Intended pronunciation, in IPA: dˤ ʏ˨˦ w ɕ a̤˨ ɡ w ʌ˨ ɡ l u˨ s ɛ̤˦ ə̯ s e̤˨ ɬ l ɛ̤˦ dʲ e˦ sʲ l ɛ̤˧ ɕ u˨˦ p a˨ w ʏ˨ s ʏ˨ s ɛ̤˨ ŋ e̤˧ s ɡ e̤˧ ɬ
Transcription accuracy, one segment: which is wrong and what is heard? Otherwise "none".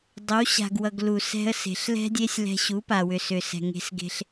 none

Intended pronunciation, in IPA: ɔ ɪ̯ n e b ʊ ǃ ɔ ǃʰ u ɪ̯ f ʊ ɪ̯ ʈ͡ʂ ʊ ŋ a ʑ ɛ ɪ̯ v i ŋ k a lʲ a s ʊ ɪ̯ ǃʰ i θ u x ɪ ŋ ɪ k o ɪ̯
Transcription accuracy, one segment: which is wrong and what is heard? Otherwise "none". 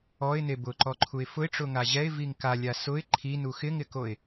θ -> n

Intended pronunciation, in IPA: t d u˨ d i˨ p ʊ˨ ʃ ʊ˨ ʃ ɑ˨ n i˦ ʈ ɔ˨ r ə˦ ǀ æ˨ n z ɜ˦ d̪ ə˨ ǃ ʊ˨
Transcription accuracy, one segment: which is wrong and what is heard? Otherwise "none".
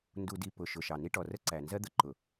t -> n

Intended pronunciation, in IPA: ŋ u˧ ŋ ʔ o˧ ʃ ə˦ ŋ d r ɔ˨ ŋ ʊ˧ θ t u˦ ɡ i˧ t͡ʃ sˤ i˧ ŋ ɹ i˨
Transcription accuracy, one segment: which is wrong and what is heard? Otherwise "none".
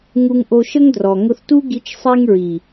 none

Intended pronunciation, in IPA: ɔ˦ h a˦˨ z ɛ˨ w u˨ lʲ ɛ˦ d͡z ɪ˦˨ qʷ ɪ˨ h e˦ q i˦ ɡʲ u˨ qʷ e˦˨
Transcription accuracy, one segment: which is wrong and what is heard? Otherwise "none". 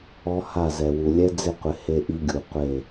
q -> ʔ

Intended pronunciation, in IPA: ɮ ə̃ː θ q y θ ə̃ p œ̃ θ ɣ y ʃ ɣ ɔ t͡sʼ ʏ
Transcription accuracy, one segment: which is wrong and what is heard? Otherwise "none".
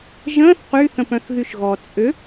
ɮ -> ʒ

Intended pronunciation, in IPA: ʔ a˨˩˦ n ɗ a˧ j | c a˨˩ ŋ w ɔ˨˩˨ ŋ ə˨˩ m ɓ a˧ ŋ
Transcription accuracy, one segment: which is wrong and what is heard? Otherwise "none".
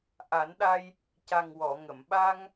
ə˨˩ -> ə˨˩˨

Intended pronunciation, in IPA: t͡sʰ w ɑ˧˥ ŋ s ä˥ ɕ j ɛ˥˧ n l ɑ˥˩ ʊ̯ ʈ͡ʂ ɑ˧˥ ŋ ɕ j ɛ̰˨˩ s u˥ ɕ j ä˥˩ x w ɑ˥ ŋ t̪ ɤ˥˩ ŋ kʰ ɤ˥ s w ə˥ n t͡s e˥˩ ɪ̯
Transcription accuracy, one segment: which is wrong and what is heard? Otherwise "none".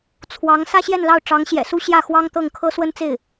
none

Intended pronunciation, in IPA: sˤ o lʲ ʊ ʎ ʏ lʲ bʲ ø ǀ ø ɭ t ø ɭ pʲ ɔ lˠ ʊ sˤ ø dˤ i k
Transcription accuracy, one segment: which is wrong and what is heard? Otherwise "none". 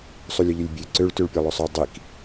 none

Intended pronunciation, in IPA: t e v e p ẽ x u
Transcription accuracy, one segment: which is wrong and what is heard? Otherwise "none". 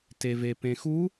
none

